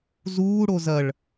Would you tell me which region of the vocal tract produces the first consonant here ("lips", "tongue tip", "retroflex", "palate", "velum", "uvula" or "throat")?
tongue tip